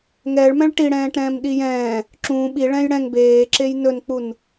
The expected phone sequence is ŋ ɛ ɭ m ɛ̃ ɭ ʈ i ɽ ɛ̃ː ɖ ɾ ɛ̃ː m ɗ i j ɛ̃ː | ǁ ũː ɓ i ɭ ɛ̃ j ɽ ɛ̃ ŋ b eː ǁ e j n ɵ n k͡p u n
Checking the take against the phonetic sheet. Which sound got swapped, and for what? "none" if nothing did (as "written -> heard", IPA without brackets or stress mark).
ɖ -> ʈ